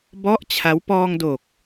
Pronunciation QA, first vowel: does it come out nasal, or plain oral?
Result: oral